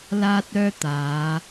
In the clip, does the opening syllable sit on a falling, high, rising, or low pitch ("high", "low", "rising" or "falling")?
high